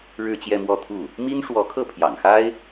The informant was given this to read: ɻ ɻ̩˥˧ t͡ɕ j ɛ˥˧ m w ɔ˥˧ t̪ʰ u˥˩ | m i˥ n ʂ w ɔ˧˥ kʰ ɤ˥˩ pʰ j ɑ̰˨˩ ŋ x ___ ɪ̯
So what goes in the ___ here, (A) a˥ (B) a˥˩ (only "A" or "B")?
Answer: A